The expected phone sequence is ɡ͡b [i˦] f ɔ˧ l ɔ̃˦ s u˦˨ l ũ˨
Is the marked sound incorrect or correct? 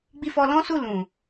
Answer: incorrect